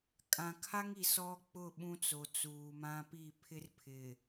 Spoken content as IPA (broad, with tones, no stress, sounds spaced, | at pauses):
kʼ ã˨ kʰ a˦ ŋ i˨ s ɔ˦ k͡p ʊ˦˨ ɓ ũ˦ t͡s o˨ t͡s uː˨ m ã˦ p i˦˨ pʰ ɪ˦ r pʰ ɪ˨